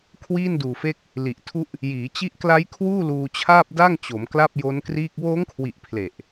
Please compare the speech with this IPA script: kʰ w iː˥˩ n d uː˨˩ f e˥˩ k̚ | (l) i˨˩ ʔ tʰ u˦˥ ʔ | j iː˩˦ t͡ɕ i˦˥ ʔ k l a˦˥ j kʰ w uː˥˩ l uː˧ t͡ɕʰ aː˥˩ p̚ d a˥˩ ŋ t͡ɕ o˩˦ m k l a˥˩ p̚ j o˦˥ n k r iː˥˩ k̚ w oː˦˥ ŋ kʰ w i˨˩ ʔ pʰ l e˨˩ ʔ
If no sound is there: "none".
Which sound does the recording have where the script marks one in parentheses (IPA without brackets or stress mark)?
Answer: l